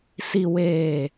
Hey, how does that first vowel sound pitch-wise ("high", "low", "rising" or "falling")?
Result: low